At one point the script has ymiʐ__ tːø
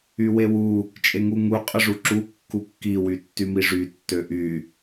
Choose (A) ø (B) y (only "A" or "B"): B